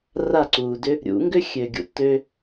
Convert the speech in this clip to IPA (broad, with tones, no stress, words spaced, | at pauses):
ra˥˩ǀuː˩dʏ˥ | ɾʲṵ˩˥ŋɡʏ˥xʲø˩ɡʲṵ˩ tø˧